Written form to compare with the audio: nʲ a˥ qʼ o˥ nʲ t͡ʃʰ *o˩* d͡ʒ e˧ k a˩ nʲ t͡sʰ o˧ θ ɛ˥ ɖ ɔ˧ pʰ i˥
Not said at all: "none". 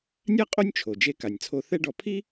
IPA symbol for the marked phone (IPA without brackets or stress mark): o˩